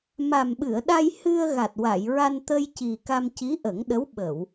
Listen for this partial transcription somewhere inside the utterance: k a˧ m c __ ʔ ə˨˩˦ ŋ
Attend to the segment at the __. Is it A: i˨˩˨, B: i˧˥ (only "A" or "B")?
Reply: B